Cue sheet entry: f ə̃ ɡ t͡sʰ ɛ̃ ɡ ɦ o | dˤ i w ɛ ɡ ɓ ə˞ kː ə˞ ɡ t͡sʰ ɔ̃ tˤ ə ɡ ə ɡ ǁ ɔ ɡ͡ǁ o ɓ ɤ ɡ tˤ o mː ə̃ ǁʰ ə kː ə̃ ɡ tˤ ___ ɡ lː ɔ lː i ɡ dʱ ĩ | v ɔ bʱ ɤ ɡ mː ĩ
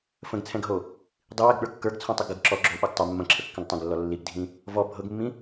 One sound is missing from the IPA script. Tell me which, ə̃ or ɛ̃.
ə̃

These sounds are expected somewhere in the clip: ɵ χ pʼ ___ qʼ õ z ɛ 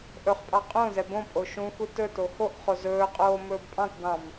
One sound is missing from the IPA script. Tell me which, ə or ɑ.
ɑ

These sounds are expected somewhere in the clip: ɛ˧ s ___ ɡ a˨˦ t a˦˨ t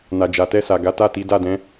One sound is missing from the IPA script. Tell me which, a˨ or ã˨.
a˨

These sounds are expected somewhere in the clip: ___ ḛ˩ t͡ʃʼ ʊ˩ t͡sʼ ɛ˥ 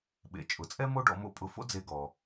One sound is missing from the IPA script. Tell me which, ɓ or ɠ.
ɓ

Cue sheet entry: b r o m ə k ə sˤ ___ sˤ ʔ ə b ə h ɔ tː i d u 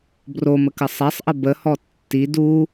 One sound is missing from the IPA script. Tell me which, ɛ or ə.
ɛ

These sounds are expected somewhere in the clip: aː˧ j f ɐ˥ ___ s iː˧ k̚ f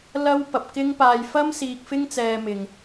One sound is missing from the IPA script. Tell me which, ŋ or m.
m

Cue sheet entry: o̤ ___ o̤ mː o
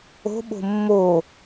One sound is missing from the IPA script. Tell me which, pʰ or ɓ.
ɓ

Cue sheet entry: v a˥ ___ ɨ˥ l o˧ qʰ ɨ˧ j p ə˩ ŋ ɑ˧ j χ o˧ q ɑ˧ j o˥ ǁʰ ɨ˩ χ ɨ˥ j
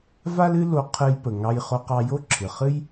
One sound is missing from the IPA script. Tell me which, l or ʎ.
l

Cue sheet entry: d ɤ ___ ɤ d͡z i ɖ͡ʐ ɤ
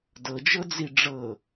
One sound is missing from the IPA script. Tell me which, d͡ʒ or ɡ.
d͡ʒ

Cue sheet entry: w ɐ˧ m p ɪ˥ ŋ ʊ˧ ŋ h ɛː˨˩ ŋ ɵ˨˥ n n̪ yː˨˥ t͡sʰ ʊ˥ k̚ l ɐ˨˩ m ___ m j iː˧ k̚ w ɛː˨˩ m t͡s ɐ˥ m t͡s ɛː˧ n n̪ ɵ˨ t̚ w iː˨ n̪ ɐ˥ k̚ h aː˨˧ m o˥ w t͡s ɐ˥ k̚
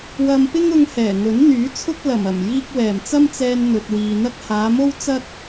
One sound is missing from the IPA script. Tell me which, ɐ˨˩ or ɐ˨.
ɐ˨˩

